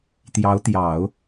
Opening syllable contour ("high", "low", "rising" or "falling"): rising